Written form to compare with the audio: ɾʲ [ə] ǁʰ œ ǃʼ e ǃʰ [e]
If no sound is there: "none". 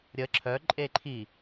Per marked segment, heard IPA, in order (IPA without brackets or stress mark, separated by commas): ə, i